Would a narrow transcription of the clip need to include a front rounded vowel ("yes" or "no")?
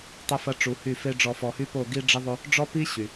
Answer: yes